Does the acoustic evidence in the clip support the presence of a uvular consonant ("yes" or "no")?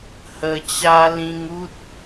no